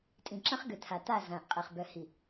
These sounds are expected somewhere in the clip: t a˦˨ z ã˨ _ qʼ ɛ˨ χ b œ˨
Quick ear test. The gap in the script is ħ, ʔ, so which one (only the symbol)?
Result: ʔ